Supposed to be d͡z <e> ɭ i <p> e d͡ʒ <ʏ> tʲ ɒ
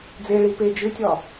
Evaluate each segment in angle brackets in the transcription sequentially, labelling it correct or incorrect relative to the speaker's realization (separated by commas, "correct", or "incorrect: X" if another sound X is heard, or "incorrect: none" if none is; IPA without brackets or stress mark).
correct, correct, correct